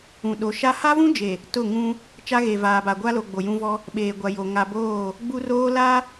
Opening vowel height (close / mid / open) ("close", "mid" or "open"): close